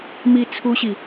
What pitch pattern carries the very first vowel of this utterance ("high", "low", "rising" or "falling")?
high